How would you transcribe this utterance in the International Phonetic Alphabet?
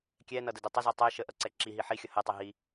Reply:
kʲ ɛ n ʌ d ə d ɛ tˤ ə z ɛ tˤ ɛ ʃ ə ʔ ʌ ǀ ɛ ǁ i ɦ i ħ i xʲ ʌ h ɛ tˤ ɛ ɦ i

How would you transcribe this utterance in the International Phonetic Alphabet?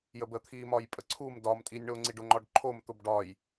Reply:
j ə b ə t̪ʰ i m ɒ j pʼ ə ǀʰ u m d ɒ m tʼ i nʲ ɳ o ŋ͡ǀ i ɖ ʊ ŋ͡ǃ ɒ ɖ ǃʰ o m t̪ ʊ b ɖ ɒ j

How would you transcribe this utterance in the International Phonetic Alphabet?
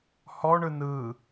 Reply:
h ɔ ɳ ɯ n ɯ

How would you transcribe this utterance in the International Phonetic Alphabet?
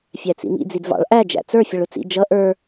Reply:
fʲ æ t͡s ḭ m ḭ d͡z i d v ɑ̰ ɭ ʔ æ d͡ʒ æ̰ t͡s ə˞ fʲ ʌ ɭ ʊ t͡s ḭ d͡ʒ ʌ ʔ ə˞

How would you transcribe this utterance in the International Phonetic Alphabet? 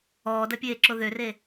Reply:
ɔː d ɐ pʲ eː ǁ o ð ø r e

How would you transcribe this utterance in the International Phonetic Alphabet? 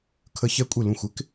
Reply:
kʰ ə˧ ç ɛ˧ kʷʼ ɪ˧˩ l ũ˧˩ xʷ ɪ˥ k

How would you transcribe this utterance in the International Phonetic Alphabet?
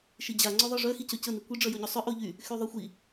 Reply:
ʃ i d͡ʑ a ŋ͡ǀ o ðˤ œ ʐ œ x i c œ c ə n i kʷ i ɖ͡ʐ œ j o ɲ o sˤ œ ʔ o ʎ y | x y ðˤ œ xʷ i

